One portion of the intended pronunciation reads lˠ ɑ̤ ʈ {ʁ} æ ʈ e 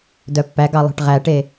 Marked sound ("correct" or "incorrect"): correct